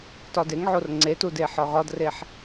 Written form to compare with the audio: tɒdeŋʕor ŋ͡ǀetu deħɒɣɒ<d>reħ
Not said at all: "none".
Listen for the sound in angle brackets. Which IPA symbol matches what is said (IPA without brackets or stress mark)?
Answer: d